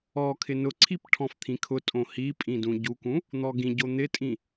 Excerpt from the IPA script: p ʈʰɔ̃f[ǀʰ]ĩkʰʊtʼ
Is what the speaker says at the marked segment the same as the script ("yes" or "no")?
no